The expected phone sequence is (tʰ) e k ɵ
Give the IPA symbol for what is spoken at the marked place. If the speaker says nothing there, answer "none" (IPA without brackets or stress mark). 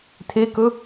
tʰ